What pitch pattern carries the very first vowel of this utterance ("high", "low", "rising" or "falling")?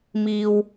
high